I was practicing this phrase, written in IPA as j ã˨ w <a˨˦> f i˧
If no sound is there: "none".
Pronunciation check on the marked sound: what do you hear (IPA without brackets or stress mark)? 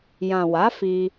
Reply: a˨˦